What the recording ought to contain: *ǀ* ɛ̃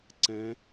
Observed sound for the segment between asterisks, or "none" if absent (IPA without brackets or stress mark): ǀ